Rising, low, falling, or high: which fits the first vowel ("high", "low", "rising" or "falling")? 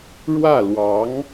falling